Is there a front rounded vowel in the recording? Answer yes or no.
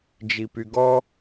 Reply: yes